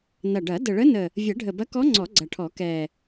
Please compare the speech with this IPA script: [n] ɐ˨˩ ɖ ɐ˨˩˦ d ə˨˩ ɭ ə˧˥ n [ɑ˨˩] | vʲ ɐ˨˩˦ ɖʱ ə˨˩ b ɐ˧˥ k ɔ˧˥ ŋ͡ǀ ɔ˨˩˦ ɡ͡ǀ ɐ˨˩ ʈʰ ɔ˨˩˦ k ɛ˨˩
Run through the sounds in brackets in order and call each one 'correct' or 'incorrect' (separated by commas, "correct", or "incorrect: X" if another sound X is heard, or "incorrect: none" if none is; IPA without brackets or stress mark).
correct, incorrect: ə˨˩